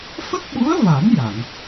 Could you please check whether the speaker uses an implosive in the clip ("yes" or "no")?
yes